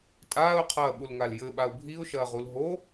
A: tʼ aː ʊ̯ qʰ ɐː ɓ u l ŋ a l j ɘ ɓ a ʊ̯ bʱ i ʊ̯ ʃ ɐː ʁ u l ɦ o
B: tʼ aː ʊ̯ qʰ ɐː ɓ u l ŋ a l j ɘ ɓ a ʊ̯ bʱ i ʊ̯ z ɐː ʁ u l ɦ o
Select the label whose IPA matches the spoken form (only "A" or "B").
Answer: A